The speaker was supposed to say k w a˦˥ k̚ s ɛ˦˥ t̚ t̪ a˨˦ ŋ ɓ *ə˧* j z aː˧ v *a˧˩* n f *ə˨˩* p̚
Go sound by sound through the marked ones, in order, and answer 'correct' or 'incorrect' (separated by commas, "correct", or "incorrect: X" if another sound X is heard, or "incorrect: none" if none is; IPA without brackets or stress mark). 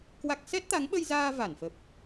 correct, correct, correct